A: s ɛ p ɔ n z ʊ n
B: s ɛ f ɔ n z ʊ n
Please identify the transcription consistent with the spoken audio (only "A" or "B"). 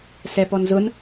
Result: A